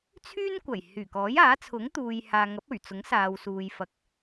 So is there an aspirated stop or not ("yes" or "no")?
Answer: yes